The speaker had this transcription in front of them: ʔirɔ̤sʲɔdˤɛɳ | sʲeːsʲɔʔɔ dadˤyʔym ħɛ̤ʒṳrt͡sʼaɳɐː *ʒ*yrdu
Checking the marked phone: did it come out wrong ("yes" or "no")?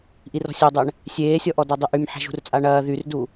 yes